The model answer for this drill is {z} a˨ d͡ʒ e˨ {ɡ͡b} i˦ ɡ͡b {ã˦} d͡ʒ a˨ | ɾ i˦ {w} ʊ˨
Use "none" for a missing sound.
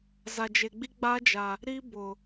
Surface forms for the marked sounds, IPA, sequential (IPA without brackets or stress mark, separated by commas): z, ɡ͡b, a˦, b